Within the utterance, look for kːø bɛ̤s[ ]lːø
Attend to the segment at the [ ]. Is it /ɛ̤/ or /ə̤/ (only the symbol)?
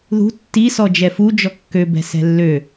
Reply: ɛ̤